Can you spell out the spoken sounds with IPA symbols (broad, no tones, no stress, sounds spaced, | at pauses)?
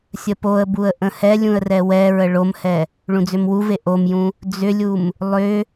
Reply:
sʲ ə p o ə̯ b u ə̯ ʔ ə̃ h ɛ lʲ ũ ə̯ r ɛ w ɛ ɹ ə ɭ o m h ɛ | ɭ ũ d͡z ʏ m w u v e ʔ o m j ũ | d͡z ʏ lʲ u m | lˠ ʏ